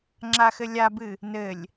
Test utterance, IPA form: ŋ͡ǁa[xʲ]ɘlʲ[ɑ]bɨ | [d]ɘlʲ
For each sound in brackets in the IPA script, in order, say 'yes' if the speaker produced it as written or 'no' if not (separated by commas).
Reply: no, no, no